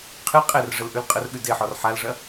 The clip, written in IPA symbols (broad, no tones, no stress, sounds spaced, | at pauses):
qʰ ɨ qʼ ɛ r ʐ ə l ʔ ʉ l qʼ ə r ɠ ʉ d e ħ ɔ r ħ a l ʐ ɐ